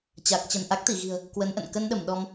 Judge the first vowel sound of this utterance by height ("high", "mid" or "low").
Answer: low